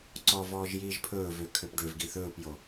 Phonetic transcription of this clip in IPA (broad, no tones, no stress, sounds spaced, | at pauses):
ǀ ɔ v ɔː ʒ j iː ʒ pʰ ɵː v ø kʰ ø p ɖ ø v ɡ i θ ɵː p j o